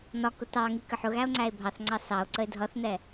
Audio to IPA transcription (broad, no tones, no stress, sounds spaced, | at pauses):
n ɒ k ʊ t ɑ ŋ i k ə ħ ʊ ɣ æ o̯ ŋ͡ǀ æ e̯ bʱ ɑ θ ŋ͡ǀ ɑ s ɑ o̯ ǀ ə e̯ dʱ ʌ θ n ɛ